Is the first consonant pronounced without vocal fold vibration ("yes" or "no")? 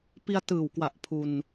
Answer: yes